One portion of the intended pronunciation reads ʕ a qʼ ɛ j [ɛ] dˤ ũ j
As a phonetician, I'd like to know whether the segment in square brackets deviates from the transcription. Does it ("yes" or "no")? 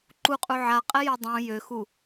yes